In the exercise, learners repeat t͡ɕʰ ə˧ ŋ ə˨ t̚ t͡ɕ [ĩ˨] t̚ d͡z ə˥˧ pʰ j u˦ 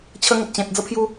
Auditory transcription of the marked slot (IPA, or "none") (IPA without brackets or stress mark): ẽ˨